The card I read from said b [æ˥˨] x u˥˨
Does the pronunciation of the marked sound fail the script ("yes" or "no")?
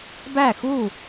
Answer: no